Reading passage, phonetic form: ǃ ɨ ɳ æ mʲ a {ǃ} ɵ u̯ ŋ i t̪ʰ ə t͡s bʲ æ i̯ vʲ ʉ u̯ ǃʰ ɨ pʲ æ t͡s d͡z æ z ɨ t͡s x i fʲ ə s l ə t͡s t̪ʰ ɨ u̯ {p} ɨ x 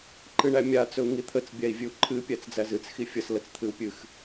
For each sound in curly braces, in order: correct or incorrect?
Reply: incorrect: t͡s, incorrect: pʲ

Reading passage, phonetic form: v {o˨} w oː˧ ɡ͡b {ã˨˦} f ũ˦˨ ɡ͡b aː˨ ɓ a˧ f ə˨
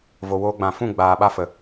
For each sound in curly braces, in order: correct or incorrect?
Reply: correct, incorrect: ã˨

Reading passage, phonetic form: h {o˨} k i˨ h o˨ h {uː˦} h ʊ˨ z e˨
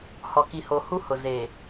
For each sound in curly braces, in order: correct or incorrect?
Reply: incorrect: ɔ˨, incorrect: u˦

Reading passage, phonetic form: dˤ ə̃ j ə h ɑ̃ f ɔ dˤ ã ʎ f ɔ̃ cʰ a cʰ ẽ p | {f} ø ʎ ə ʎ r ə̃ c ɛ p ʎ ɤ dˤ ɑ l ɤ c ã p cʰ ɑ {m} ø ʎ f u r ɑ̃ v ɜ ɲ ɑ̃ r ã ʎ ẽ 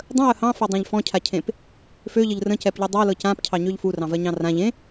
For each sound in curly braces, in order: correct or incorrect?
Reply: correct, incorrect: ɲ

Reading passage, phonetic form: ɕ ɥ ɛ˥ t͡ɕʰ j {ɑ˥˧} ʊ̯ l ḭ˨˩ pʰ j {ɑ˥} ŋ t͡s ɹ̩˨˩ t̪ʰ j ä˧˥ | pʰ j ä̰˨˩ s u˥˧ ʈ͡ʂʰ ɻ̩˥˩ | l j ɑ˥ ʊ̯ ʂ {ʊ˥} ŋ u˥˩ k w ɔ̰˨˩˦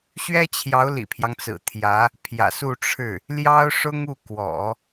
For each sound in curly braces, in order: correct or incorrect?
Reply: incorrect: ɑ˧˥, incorrect: ɑ˦, correct

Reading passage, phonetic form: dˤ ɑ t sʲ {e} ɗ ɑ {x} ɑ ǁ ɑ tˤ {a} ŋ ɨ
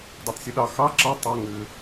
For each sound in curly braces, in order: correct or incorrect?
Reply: incorrect: ɨ, correct, incorrect: ɑ

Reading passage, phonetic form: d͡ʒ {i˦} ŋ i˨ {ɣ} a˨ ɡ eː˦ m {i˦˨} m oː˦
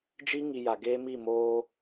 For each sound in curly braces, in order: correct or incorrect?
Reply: correct, incorrect: j, correct

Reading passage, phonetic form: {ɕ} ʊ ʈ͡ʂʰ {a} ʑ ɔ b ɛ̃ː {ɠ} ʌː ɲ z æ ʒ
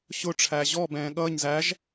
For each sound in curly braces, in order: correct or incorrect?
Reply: correct, incorrect: æ, correct

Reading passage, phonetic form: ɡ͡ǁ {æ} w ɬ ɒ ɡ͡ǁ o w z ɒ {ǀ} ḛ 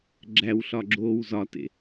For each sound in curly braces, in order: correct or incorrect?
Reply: correct, incorrect: t

